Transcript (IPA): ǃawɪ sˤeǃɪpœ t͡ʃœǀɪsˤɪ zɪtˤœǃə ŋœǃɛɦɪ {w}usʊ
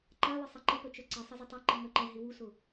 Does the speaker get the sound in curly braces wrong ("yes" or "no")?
no